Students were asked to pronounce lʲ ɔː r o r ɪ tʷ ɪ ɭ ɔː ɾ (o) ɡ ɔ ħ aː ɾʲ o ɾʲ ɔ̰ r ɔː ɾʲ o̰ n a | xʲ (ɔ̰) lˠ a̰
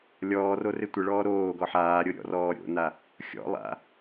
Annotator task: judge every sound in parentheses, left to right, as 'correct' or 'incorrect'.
incorrect: oː, correct

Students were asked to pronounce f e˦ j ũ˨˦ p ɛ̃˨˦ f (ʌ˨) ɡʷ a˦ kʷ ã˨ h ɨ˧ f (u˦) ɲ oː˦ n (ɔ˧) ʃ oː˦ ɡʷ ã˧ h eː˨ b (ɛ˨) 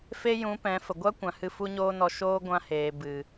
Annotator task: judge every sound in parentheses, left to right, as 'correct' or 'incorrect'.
incorrect: ə˨, correct, correct, incorrect: ɨ˨

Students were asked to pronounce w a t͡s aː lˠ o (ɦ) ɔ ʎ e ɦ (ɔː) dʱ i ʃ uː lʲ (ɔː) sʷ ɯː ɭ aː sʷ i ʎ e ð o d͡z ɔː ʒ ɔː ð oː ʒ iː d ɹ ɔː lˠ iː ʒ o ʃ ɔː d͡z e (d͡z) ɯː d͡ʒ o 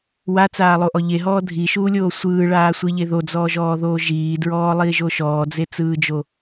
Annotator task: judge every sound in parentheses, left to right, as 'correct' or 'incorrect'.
incorrect: ʔ, correct, incorrect: oː, incorrect: t͡s

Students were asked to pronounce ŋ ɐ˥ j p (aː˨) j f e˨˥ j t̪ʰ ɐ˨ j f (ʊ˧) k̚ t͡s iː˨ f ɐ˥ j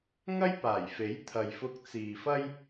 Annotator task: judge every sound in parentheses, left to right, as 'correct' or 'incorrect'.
incorrect: aː˨˩, correct

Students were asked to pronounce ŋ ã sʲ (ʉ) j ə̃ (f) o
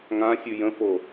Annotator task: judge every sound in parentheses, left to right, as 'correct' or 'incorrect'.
correct, correct

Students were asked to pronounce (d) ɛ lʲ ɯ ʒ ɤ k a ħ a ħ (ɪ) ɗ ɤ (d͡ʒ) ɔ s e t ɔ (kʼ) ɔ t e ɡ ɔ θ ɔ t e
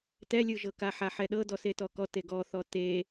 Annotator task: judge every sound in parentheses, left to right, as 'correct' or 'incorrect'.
incorrect: t, incorrect: ɛ, incorrect: d, incorrect: k

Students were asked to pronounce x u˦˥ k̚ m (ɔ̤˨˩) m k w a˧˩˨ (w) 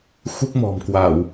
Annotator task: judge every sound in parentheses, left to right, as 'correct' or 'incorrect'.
correct, correct

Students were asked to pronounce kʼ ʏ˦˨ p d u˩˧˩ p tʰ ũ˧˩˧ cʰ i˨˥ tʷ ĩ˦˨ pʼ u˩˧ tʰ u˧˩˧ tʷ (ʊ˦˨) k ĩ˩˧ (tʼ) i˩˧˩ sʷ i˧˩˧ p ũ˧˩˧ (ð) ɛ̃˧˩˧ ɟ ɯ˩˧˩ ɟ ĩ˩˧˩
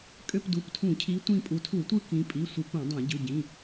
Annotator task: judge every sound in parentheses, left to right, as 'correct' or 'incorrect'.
incorrect: ɯ˦˨, incorrect: pʼ, incorrect: dˤ

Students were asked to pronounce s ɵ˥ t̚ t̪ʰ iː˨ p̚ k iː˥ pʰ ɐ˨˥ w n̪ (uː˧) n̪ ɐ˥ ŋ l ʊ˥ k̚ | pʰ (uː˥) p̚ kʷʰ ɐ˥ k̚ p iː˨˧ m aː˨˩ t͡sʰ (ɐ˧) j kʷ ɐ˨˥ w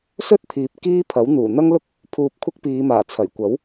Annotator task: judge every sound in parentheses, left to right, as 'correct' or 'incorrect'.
incorrect: uː˨˩, incorrect: uː˧, incorrect: ɐ˨˩

